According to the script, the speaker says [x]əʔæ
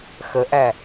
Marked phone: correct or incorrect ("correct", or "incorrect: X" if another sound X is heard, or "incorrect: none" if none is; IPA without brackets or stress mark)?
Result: correct